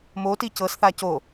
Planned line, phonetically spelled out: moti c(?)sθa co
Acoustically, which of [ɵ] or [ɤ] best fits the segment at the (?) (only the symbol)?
ɤ